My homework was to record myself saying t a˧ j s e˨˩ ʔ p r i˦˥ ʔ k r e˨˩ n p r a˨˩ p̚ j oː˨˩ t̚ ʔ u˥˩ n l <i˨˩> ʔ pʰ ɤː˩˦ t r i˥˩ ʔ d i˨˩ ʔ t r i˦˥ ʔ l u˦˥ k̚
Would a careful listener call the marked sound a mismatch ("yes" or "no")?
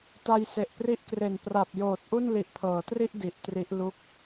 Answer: no